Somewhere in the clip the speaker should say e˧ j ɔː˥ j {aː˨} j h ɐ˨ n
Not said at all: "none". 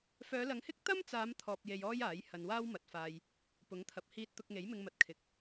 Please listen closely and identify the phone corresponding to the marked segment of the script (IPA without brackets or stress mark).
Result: aː˨˥